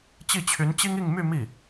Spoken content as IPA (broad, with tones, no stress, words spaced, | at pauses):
t͡ɕi˥˩t͡ɕʰy˧˥nt͡ɕi˥ŋ i˥˧ŋmy˥˧ mi˥˩